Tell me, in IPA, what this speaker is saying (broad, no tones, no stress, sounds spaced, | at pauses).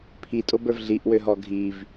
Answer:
pʰ i tʼ o b ə˞ v ɮ i ʔ w ø ɦ ɔ ɡʱ i v